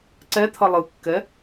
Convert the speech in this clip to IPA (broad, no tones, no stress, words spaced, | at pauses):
ǀɛt̪ʰʌ lˠɯkːɛ